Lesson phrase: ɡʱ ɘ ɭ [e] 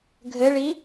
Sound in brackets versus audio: incorrect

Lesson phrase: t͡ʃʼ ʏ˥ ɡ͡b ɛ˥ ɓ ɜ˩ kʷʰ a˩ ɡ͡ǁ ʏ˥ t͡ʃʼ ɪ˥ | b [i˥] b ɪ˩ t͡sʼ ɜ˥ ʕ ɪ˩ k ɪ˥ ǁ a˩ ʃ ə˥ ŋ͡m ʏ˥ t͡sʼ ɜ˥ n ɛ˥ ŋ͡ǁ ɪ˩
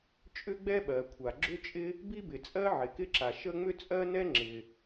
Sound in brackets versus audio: correct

